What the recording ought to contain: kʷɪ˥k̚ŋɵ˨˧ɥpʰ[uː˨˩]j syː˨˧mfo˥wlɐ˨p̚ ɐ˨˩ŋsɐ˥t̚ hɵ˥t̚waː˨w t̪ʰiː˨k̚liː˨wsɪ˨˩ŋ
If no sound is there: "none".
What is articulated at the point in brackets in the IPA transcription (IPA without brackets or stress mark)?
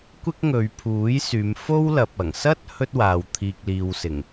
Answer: uː˨˥